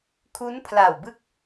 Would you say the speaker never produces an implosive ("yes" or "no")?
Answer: yes